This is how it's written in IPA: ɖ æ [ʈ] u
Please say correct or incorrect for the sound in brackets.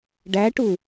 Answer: correct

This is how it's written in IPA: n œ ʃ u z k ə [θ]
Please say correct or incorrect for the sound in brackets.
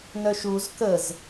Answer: incorrect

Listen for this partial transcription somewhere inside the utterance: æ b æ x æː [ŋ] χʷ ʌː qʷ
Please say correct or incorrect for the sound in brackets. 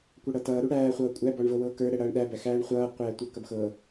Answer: incorrect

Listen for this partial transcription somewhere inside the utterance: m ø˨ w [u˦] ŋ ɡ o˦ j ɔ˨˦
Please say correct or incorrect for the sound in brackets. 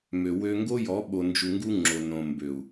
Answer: incorrect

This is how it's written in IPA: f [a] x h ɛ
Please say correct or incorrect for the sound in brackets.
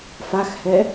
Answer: correct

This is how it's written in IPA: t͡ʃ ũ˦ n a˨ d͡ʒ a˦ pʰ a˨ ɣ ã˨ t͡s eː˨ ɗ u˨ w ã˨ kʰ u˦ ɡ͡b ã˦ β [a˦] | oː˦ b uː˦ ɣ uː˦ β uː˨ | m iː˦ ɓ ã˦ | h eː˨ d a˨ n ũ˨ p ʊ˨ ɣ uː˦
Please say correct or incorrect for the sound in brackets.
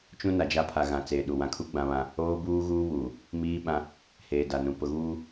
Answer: incorrect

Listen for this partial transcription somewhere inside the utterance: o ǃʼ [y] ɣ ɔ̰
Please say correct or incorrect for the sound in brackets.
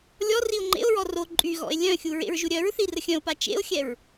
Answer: correct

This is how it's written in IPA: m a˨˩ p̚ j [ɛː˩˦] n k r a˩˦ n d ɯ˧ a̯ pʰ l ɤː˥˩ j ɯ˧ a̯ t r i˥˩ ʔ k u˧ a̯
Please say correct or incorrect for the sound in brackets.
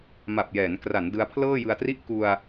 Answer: correct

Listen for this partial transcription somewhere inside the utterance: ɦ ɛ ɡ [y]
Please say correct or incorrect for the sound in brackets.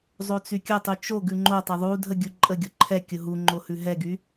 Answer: correct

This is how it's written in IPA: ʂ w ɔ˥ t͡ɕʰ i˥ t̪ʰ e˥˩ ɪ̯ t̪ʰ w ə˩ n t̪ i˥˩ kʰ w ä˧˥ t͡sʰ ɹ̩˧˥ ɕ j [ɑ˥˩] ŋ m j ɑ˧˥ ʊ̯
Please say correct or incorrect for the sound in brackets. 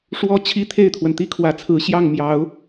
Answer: correct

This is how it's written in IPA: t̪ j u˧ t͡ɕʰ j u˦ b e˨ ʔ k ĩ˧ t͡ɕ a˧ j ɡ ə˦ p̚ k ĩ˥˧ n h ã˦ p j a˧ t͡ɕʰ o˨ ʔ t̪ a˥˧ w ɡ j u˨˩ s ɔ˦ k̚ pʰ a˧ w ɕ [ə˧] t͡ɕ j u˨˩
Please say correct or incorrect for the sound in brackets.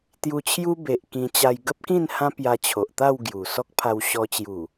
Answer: incorrect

